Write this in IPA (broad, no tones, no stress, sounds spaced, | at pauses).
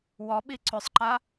w ɔ ɓ i ǀ ʏ sˤ ǃ a